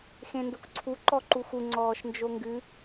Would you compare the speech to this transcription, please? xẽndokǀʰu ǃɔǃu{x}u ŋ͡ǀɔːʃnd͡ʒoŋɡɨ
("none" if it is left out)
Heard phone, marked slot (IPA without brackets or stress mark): x